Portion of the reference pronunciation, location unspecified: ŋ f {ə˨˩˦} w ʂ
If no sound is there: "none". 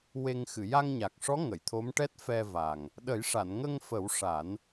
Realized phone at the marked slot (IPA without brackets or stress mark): ə˨˩˦